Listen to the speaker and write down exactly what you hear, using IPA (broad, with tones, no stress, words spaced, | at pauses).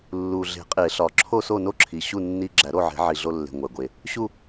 lːu˨˩ɮe̤˨˩˦ qʼe˨˩˦ɬɒ˨˩ ǁʰo˥˨so˥˨no˥˨ǁʰi˨˩ ɕu˥˨ nːi˧ ɡ͡ǁæ˨˩˦ɾo˥˨ʕe̤˨˩˦ ʕi˨˩ɮo˧lːe̤˨˩ ŋʷæ˨˩ɡʷe˨˩ | ɕu˥˨